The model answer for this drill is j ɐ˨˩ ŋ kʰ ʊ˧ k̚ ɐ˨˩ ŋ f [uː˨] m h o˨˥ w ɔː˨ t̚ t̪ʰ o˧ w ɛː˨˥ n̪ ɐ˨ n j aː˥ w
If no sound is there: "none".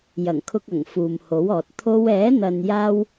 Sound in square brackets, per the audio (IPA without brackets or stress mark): uː˨